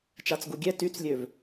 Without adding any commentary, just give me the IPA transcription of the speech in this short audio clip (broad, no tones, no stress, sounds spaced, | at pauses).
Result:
t͡ʃ a t͡s ɡ u ɡʲ ɛ t y t͡s lʲ ø v